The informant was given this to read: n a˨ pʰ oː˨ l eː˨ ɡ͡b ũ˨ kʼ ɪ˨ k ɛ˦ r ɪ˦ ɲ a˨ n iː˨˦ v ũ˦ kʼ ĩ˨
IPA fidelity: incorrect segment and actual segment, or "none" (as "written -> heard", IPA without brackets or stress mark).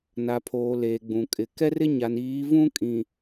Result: none